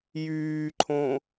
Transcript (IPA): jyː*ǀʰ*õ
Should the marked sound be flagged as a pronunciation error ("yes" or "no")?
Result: yes